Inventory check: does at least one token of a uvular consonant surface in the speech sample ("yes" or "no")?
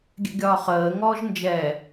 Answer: yes